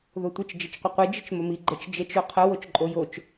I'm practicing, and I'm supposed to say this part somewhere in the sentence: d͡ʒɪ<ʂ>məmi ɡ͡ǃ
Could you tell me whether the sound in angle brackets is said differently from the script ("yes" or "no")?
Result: yes